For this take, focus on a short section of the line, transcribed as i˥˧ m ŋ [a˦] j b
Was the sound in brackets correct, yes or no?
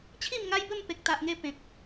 yes